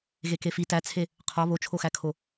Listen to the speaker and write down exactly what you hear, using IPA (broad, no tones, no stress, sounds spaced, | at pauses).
ɣ e k e f i t æ t͡sʰ e | qʰ ɒ β o t͡ʃʰ o x æ kʰ o